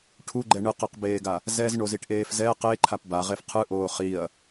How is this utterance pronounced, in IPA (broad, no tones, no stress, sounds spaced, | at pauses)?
ʈʰ u ɡ͡ǃ ɛ ɳ ɯ q ɛ q b eː ɡ a | z ɛ z ɳ o z i ʈ ʔ eː f z ɛ q e ǃʰ a p b a ʁ e f qʰ ɯ ʔ oː χ i ɐ̯